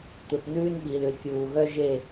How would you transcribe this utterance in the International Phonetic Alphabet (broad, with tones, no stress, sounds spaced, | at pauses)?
t̪ u˨ θ n̪ ʉː˦ n ɓ iː˨ l ʉ˨ l kʲ uː˨ ɣ œ˦ ʒ e˦˨